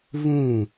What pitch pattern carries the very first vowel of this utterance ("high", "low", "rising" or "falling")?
falling